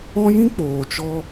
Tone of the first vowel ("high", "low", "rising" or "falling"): high